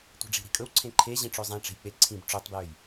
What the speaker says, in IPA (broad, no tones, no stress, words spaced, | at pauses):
tʷe̤ɖ͡ʐi̤ɾi̤kʼɵw ǀʰẽǃʰe ʑĩʈ͡ʂøzˤẽ ʈ͡ʂe̤jk͡pe ǀʰĩb ʈ͡ʂøtˤbjøj